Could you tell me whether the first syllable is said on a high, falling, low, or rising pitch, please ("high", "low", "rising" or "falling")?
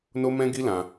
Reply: high